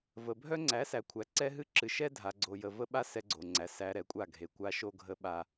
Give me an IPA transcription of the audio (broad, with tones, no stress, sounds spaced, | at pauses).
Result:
v ə˨ bʱ œ˦ ŋ͡ǀ æ˨˦ s æ˨ kʷʰ æ˨ ǀ ɛ˦ ɦ ɨ˦ ǁ ɨ˨ ʃ ɛ˦ dʱ a˨ ɡ͡ǀ o˨ j ə˨ v ə˦ ɓ a˦ s ɛ˦ ɡ͡ǀ o˨ ŋ͡ǀ æ˨ s æ˨ ɾ ɛ˨ kʷʼ a˦˨ ɡʱ e˨ kʷ a˦ ʃ o˦ ɡʱ ə˦ ɓ a˦